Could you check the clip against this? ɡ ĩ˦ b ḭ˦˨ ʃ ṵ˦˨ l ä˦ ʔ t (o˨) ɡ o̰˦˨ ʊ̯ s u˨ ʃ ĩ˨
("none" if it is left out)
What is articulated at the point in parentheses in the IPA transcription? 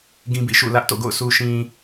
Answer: o̰˦˨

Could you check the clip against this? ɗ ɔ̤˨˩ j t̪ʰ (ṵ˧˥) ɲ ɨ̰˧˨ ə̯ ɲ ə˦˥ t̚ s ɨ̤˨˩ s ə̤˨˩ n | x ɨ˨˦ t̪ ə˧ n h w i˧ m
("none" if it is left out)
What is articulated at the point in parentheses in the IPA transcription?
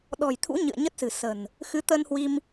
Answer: ṵ˧˥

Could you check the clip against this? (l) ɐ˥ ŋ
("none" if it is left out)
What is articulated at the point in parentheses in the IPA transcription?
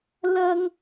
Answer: l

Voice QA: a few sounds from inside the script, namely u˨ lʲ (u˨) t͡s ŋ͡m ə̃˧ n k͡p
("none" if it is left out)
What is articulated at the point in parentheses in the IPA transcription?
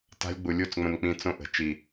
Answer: u˦˨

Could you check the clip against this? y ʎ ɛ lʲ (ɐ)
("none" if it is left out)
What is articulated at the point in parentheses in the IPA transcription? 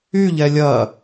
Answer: ɐ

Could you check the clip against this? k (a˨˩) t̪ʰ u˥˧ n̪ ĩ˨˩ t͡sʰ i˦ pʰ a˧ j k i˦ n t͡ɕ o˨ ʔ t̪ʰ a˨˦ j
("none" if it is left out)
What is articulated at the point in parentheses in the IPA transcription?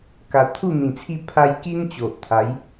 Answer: a˨˩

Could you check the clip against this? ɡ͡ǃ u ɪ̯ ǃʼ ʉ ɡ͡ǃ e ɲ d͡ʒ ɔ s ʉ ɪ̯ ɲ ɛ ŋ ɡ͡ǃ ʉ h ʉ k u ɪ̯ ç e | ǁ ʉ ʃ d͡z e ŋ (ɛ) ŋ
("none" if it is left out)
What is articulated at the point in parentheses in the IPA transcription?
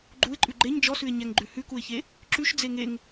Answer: e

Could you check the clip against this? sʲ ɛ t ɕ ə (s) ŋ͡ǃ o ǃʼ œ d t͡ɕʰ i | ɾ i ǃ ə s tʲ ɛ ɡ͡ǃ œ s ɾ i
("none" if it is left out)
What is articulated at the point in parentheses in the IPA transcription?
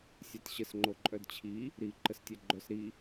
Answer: s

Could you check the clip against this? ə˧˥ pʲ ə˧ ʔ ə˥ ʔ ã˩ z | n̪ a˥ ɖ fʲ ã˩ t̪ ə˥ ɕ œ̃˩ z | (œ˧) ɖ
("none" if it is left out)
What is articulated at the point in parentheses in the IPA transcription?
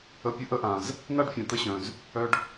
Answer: œ˧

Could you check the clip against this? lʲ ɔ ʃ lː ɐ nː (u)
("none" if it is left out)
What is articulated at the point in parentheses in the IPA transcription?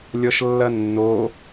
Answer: o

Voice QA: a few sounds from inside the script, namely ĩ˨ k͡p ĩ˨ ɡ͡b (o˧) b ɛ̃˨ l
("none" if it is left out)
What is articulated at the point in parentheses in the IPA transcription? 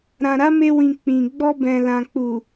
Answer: ɔ˧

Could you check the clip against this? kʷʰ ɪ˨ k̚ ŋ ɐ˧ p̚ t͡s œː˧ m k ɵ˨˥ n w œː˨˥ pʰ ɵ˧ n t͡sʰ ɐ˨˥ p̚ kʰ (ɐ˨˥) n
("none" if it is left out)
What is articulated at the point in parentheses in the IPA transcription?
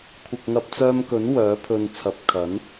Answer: ɐ˨˥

